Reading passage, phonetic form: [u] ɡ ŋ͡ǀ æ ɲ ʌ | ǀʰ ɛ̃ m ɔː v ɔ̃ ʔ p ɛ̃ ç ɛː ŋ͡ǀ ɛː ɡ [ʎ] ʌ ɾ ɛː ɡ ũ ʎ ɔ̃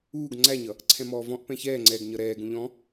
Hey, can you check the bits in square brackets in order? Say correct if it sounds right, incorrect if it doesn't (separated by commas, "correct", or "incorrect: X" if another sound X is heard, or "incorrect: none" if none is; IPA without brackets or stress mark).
incorrect: uː, incorrect: ɲ